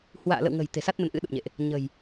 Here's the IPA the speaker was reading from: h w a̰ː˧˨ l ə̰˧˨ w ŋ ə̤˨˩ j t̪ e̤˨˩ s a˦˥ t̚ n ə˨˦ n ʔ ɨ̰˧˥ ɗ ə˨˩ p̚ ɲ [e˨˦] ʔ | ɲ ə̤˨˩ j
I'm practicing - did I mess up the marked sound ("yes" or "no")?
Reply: yes